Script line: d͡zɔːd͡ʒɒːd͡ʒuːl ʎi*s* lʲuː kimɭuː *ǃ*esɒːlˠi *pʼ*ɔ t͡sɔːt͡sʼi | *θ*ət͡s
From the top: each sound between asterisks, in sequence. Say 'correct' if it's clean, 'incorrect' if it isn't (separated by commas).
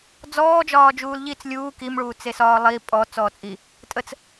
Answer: incorrect, incorrect, correct, incorrect